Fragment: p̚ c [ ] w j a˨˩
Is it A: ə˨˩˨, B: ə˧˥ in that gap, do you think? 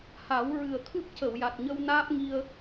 A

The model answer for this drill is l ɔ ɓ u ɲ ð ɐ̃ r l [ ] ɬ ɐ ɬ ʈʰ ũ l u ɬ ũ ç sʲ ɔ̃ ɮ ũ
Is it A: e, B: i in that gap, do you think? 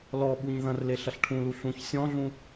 A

